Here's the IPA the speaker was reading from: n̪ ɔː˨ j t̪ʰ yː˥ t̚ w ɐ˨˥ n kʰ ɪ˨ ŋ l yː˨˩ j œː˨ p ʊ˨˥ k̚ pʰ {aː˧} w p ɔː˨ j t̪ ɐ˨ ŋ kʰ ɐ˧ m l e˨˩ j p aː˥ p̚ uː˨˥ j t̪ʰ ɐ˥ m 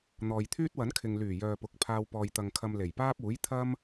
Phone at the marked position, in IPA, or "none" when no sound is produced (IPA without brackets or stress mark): aː˧